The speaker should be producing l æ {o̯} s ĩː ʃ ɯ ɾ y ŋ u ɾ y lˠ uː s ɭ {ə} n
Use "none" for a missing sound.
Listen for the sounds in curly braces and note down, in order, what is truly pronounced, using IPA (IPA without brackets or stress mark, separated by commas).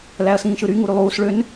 ɐ̯, ø